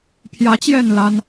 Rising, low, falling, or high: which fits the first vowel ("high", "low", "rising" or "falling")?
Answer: rising